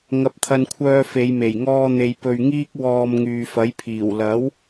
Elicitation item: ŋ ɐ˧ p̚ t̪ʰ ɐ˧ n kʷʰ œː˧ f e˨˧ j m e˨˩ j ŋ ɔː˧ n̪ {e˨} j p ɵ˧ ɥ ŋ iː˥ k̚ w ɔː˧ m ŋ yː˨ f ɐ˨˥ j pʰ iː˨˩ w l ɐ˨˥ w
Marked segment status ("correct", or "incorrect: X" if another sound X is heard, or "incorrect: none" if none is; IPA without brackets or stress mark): correct